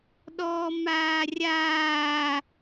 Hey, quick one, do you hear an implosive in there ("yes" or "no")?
yes